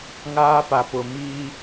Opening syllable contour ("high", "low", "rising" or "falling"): high